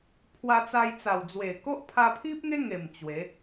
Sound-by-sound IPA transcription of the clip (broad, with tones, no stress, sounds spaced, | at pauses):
pʰ w a˧ t͡s a˧ j t͡s a˨˩ w d͡z w e˨˩ k o˦ ʔ pʰ a˧ pʰ i˦ p̚ ŋ e˦ ŋ e˨˩ m t͡ɕ w e˨˦